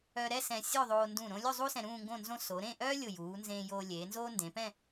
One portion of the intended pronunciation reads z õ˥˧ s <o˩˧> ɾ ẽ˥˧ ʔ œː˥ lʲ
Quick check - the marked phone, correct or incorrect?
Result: correct